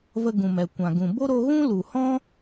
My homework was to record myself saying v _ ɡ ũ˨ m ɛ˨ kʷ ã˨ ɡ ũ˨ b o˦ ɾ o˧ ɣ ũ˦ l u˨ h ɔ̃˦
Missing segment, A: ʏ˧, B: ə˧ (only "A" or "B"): B